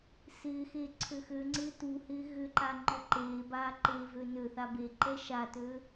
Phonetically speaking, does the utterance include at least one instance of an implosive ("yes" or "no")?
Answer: no